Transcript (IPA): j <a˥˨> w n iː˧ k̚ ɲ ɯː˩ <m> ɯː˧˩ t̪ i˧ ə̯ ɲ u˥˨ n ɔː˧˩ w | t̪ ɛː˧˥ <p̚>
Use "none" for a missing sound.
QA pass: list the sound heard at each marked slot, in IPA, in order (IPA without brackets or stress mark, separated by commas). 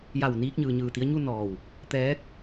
a˧˩, ɲ, k̚